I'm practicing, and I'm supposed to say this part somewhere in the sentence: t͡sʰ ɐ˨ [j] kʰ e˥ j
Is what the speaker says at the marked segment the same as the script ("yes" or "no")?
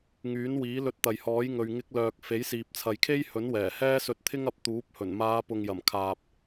yes